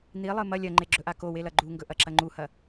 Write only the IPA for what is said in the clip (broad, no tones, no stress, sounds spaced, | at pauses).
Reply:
n̪ i lˠ ɨ m ɐ lʲ ɐ ŋ͡ǃ e ɡ͡ǁ ɵ ʔ a k o w e l ɐ ɡ͡ǃ u ŋ ɡ ɵ ʔ ɐ ǁ ɐ ŋ͡ǃ u h ɐ